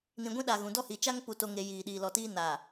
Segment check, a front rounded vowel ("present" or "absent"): absent